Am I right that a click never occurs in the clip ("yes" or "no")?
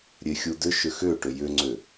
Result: no